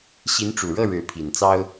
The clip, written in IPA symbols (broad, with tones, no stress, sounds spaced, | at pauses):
ɕ i˧˥ n ʈ͡ʂ u˨˩ ɻ ɤ˥˩ ɻ ɻ̩˧˥ pʰ i˨˩ n t͡s ɑ˥ ʊ̯